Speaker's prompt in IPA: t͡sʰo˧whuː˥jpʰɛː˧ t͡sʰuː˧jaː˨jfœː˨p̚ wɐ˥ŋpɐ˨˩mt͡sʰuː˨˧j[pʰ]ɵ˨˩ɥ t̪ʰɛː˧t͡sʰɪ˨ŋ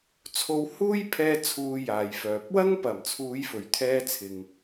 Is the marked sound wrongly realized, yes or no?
yes